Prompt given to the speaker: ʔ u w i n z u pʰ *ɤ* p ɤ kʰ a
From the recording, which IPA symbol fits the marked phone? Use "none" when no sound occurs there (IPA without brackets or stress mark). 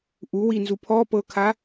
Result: ɔ